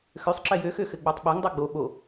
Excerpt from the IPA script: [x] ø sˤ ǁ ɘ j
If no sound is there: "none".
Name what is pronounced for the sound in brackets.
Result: x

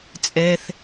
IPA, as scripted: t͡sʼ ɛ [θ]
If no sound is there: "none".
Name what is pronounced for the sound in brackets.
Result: θ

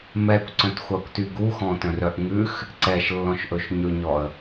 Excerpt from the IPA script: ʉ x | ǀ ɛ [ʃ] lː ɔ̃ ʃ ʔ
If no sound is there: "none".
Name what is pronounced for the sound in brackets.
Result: ʃ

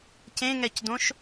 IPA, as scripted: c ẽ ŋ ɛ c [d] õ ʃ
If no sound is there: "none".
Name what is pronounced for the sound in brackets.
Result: d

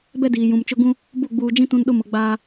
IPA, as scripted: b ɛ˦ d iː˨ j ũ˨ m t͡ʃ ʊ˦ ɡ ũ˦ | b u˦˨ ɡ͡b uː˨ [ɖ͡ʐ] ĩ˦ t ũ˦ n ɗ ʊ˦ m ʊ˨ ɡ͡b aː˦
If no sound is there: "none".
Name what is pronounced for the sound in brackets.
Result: d͡ʒ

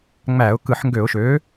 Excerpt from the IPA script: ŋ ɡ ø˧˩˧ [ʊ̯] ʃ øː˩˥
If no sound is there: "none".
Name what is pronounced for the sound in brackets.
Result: ʊ̯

